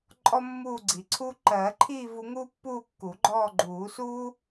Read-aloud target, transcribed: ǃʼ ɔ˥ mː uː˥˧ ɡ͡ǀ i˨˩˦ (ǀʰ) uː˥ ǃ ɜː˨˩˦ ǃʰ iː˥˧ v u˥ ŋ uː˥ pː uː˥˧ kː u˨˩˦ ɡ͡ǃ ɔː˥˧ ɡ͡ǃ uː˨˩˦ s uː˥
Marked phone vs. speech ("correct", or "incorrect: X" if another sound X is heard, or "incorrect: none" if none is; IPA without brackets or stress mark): correct